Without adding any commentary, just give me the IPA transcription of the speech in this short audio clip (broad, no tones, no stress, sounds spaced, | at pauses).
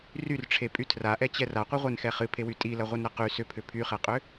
r y r ʈ͡ʂʰ e pʼ y tʰ r a ʔ ɛ t͡ɕ ɛ r a qʷ ɨ ʁʷ e n x ɛ χ ɨ pʰ e w y tʼ i l ɐ ʁʷ ɨ n ɾ ɐ q y s ʏ pʰ ʏ pʰ y χ ɛ qʼ ʏ